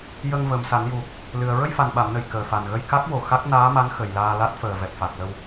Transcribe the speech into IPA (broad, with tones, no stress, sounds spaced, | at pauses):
j ə˧ ŋ v ə˨˩ m s a˨˩˦ n j u˨˩ | l ɨ˨˩ ə̯ ɹ ə˧ j f a˨˩ n ɓ a˨˩˨ m n ə˨˩ j k əː˨˩ f a˨˩ n ɣ ə˧ j k a˦˥ k̚ w o˨˩ x a˦˥ k̚ n aː˧˥ m a˧˥ n x ə˨˩ j l aː˧ l a˦˥ t̚ f əː˨˩ v ɛ˨˩ p̚ f a˨˩ k̚ l ə˧ w